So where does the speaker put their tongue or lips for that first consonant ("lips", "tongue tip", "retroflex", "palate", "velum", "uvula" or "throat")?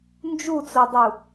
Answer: tongue tip